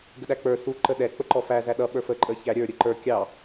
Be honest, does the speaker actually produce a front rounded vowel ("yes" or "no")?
no